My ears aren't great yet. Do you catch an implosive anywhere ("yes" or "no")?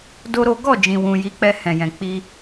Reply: no